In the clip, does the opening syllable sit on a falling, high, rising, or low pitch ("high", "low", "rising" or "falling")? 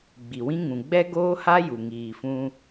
low